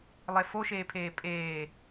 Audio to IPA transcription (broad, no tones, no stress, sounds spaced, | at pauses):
lˠ e f o ʃ eː pʰ eː pʼ eː